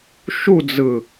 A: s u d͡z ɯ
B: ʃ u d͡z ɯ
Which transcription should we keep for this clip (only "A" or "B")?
B